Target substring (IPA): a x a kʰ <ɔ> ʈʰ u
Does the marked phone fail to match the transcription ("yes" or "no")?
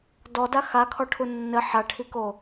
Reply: no